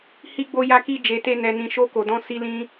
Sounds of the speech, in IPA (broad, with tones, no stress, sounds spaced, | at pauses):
h i˧ ɡ͡b o˧ j a˧ k i˧ d͡ʒ e˨ t e˧ n ɛ˨ n ĩ˨ ʃ o˧ k o˨ d ɔ̃˧ s i˦ l ĩ˦